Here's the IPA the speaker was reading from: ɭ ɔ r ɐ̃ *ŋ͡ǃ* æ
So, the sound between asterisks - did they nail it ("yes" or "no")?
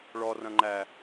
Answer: yes